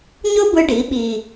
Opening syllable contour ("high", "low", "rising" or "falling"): high